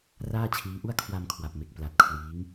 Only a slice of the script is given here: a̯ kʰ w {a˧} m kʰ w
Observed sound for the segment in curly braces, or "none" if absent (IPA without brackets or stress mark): a˧